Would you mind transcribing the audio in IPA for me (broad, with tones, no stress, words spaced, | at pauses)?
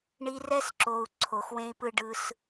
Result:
ɳi˧rɛ˦sǁo˨u̯ ǀʰo˨xwẽ˦i̯pɯ˦ ɖɯ˧s